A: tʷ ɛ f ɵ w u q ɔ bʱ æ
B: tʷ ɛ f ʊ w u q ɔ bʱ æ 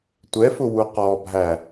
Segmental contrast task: B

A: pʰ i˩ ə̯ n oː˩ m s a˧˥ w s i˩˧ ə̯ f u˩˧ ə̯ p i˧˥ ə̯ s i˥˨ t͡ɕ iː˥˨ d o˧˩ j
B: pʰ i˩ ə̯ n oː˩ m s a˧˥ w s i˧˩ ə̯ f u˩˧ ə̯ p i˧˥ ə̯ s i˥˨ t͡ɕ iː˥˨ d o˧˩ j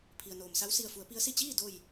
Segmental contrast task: B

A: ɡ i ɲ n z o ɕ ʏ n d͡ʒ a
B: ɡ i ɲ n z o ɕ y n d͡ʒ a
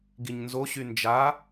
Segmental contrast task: B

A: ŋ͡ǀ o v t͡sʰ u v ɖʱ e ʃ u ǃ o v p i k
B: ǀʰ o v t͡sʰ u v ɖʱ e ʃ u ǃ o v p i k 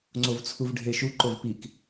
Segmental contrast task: A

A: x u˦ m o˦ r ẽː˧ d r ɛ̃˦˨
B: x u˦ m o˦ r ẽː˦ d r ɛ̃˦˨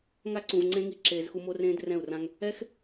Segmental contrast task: B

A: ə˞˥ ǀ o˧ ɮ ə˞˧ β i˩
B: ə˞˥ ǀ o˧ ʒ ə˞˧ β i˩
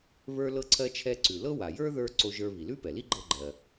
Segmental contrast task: B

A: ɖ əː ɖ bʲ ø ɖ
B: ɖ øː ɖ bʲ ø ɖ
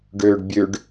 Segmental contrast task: B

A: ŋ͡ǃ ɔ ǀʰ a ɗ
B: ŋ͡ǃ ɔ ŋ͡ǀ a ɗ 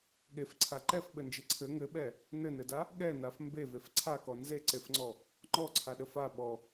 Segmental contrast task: A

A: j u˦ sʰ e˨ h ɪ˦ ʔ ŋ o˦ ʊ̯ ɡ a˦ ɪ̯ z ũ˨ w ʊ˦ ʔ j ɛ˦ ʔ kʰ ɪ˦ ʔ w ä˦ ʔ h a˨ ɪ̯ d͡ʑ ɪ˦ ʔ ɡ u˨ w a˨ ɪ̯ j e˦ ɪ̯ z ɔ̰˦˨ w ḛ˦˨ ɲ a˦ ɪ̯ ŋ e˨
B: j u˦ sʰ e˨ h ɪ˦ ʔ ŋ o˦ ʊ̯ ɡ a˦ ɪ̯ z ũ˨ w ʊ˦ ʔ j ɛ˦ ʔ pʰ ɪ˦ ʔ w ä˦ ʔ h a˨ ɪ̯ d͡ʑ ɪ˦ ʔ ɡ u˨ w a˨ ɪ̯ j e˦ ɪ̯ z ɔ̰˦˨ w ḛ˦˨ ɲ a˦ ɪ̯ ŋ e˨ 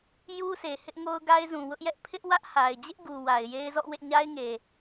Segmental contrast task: B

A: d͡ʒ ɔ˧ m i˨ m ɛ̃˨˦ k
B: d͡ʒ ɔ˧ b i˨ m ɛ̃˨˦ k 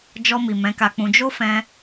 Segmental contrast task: A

